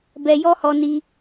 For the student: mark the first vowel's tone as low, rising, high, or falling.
low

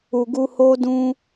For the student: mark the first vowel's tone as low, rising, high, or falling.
low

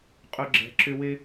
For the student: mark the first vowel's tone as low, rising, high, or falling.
high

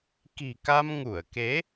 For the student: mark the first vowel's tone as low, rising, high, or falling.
low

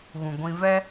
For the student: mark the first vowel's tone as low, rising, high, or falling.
low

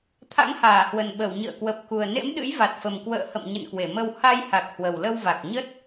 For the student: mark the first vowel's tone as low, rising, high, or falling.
rising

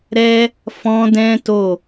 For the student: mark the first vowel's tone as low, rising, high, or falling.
high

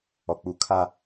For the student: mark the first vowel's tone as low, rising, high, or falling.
low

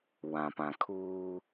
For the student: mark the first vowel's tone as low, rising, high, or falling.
low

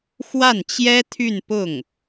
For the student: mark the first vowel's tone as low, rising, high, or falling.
falling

